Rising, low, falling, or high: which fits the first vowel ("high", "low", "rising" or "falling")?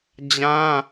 high